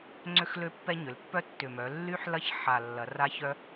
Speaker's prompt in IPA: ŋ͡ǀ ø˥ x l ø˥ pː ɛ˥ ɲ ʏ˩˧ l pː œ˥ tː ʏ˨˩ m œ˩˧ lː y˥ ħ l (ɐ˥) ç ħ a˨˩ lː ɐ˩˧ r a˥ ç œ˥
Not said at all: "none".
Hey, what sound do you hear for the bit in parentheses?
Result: ɐ˥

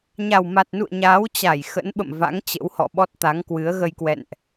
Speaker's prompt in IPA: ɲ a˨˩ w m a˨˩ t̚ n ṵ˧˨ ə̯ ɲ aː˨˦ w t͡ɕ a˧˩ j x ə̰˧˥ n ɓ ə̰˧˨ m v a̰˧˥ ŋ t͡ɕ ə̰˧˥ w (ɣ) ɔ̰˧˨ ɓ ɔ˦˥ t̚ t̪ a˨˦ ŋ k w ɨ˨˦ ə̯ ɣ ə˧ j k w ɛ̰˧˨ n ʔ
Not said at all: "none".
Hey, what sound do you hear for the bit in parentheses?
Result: h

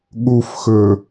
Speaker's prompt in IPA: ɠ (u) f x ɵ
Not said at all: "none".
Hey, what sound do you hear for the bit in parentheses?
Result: u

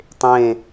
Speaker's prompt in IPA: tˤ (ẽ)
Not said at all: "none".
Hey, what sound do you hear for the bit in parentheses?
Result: ẽ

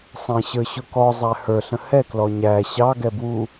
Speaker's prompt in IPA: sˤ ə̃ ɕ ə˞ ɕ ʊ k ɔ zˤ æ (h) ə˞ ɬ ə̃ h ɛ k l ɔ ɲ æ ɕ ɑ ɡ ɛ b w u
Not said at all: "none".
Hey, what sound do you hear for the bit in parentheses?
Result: h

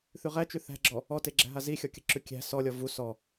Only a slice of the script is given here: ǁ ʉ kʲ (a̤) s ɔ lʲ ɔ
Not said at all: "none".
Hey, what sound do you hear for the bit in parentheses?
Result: æ̤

